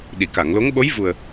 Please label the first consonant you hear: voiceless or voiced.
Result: voiced